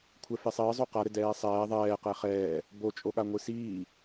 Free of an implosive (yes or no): no